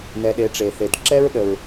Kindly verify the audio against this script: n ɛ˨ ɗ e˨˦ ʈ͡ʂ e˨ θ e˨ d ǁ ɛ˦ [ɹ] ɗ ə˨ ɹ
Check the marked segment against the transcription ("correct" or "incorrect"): correct